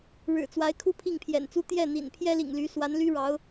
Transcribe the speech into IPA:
ɻ ɻ̩˨˩ t͡s w a˧˥ ɪ̯ kʰ u˥˧ pʰ i˥˩ ŋ pʰ j ɛ̰˨˩ n t͡s u˥ t̪ j ɛ˥˩ n̪ ḭ˨˩ n pʰ j ɛ˥ l ḭ˨˩ ŋ l y˧˥ s w a˧˥ n l y˥ ɻ ɑ˧˥ ʊ̯

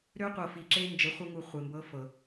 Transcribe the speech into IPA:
ɾ ø˦ qʷ ɤ˨ f i˨ ǁ e˦ n d͡ʒ ɘ˨˦ χʷ ɘ˦ ŋ u˨ χʷ e˨ m b ɤ˦ f ɤ˨

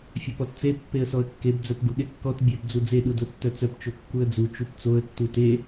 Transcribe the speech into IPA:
fʲ o p ɔ t t͡s e pː e ə̯ s ɔ ə̯ kː e b d͡z œ p ɡ u ɠ e kː ɔ t bʲ œ b d͡z u d͡z e ɗ u d o tː œ t͡s œ p t͡ʃ o kː u ə̯ d͡z u t͡ʃ u p t͡s o ə̯ tː u t e

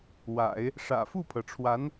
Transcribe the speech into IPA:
w a̰˨˩˦ ɪ̯ | ʂ ä̰˨˩ f u˥˩ pʰ ɤ˩ ʈ͡ʂʰ w a˧˥ n

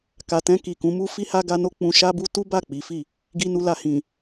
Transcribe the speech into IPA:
k a˨ t ɛ̃˧ k i˨ k ũ˨˦ m u˦ f i˧ h a˧ ɡ a˧ n o˧ k͡p ũ˧ ʃ a˦ b u˦ t u˦ b a˦˨ k͡p i˨˦ f i˦˨ | ɡ i˧ n u˧ l a˧ h ĩ˨

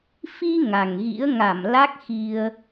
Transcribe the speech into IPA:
f i˧ ŋ a˨˩ ŋ ɣ ḭ˧˥ ə̯ ŋ a˧˩ m l a˦˥ k̚ x i˧ ə̯

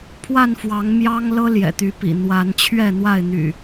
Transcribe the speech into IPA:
pʰ w a˥˨ n f w ɑ˨˦ ŋ m j ɑ˦ ŋ l ɤ˦ l j ɛ̰˨˩ t̪ y˨˦ p ḭ˨˩ n̪ w a˨˦ n t͡ɕʰ ɥ ɛ˥˨ n̪ w a˥˨ ɪ̯ n̪ y̰˨˩

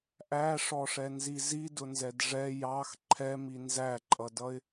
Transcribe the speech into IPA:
ʔ æ ʂ ɔ ʂ ɛ n z i z i d ʊ n z ɛ d ʐ ɛ j ɑ x ǃʰ ɛ m i n z æ ǃʼ ʌ d ʌ ɪ̯

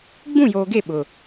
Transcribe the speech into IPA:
ɡ͡b ũ˦˨ j oː˨ ɡ e˦˨ ɓ ʊ˨

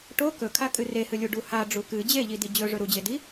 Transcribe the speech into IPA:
ʈ o k ɵ kʰ a kʼ ɨ r e h ɨ lʲ u ɖ u h a ɖ͡ʐ u k ɨ d͡ʑ e ʎ i d i d͡ʑ ɵ ʐ ɵ ɾ u d͡ʑ e d i

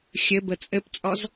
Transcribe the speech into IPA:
xʲ ɘ b ə t͡sʼ ɘ p t͡sʼ ɔ z

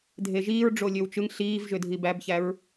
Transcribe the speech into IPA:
dʱ e ʒ iː ɹ ɖ͡ʐ o lʲ ø w t͡ʃ ɯ ŋ ɬ iː v ʒ ø dʱ i b æ b ç æ ɹ

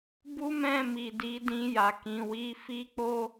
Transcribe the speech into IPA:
b u˦ m ɛ̃˦˨ m i˨ d i˨˦ d ĩ˧ j a˨ k ĩ˨ w i˨˦ f i˦ k͡p o˦

